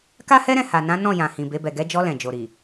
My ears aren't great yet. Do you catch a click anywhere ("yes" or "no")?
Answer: no